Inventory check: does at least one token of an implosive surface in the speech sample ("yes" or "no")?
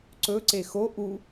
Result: no